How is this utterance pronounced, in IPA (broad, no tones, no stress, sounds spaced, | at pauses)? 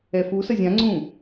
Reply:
ɛ f u s ə zʲ ã ŋ͡ǀ ũ